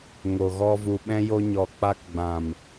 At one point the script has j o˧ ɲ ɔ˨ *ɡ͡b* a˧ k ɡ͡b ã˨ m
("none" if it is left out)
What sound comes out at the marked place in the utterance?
k͡p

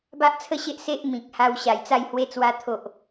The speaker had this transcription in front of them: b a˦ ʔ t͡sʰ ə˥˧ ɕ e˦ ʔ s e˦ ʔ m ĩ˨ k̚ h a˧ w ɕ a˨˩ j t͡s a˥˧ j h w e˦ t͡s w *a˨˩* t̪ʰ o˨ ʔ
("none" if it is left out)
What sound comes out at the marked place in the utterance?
a˦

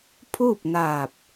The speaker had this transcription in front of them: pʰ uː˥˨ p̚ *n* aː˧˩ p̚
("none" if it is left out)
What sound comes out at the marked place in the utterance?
n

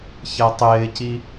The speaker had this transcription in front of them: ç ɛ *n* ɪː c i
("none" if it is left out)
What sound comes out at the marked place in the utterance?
tˤ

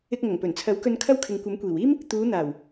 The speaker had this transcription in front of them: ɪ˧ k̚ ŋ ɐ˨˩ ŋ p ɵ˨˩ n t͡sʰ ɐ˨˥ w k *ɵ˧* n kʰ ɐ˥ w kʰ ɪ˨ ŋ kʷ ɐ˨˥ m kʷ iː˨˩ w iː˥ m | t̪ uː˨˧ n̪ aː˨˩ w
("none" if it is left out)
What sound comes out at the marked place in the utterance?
ɵ˧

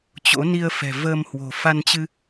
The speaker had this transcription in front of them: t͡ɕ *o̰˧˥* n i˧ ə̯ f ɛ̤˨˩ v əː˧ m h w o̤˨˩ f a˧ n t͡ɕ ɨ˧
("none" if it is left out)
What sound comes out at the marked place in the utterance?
o̰˧˥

